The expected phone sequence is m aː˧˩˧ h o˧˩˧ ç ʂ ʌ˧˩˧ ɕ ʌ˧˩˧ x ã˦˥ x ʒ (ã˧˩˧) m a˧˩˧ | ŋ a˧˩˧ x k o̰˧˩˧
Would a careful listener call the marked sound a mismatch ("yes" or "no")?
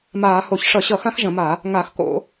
yes